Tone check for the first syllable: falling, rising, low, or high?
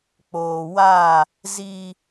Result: low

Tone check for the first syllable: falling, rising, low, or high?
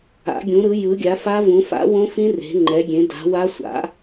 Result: rising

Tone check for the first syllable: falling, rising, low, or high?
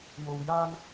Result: low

